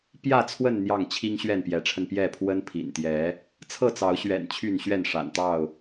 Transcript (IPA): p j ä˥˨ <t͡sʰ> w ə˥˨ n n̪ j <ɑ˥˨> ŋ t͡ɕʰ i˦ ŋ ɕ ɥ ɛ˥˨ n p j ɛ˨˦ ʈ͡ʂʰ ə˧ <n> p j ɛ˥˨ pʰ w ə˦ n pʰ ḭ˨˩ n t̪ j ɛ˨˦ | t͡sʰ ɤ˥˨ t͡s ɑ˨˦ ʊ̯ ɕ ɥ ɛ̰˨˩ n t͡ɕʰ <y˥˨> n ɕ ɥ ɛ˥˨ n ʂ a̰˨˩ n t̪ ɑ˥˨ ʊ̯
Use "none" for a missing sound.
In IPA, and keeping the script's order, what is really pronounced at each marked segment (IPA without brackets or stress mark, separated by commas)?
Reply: t͡sʰ, ɑ˥˨, n, y˥˨